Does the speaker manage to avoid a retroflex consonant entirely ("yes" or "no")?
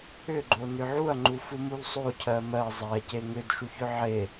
yes